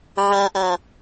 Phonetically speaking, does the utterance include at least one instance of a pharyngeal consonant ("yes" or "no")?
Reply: yes